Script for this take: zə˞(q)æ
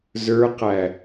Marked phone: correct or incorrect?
correct